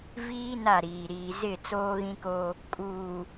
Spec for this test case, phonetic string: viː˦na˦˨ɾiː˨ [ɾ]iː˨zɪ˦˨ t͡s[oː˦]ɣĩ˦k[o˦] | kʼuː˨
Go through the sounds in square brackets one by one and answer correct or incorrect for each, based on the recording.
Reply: correct, correct, correct

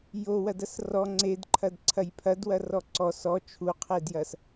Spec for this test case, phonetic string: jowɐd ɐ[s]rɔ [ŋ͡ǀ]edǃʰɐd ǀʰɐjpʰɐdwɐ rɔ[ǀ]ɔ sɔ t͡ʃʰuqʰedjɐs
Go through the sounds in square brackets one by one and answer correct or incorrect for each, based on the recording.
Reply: correct, correct, correct

